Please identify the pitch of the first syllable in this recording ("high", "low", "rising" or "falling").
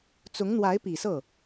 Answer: rising